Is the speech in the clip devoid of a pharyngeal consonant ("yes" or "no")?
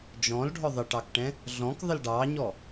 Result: yes